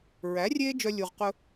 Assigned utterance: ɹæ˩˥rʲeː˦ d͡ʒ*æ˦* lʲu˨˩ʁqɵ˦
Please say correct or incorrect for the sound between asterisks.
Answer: incorrect